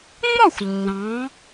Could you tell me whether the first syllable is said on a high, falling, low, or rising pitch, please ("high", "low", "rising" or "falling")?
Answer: falling